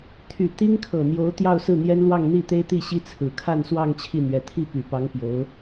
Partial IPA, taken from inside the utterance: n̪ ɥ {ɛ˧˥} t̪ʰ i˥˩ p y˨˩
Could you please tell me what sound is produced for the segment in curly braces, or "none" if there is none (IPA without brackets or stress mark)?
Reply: ɛ˧˥